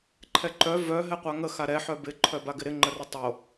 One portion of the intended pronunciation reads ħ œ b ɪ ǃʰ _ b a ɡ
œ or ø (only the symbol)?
œ